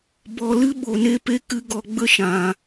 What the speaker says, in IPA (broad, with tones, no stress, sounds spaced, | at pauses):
b ɔ˧ l ɨ˦ ɓ o˧ n e˦ p e˦ k ɨ˦ ɡ ɔ˧ ɡ͡b ə˦ ʃ ã˧